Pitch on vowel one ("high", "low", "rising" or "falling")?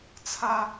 high